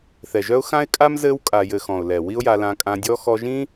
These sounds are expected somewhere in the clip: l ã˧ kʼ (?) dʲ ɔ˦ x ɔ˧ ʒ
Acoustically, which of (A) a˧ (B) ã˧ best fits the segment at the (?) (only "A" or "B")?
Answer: B